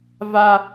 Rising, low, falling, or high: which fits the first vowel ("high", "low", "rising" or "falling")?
high